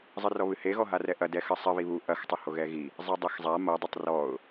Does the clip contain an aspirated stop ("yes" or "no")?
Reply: no